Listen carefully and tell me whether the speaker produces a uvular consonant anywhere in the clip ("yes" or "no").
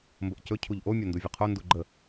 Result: yes